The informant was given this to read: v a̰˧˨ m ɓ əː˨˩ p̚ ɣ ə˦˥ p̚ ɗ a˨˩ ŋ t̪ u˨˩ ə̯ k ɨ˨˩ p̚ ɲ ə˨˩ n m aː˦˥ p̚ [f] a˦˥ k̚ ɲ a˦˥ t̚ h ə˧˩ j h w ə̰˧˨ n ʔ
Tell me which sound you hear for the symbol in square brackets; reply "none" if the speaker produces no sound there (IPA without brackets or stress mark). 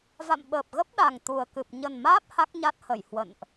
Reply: h